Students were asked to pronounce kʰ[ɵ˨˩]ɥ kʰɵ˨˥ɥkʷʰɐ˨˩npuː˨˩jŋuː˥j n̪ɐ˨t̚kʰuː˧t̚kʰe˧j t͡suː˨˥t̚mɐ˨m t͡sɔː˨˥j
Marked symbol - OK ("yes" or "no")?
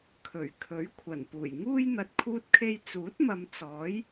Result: yes